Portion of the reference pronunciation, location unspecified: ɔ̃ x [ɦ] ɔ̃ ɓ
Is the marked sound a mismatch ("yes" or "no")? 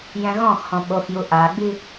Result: yes